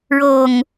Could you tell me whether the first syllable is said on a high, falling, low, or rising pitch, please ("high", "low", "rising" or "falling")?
low